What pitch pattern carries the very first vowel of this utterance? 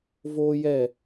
high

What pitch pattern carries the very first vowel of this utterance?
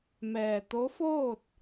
low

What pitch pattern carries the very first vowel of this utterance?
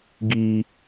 high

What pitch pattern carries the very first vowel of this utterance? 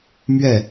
falling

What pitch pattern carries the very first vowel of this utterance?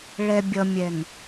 low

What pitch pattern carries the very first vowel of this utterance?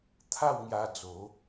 falling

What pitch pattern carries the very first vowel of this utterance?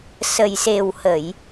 low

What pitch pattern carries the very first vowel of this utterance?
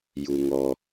low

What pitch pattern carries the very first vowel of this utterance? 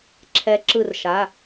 rising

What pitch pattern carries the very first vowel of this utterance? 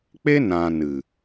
high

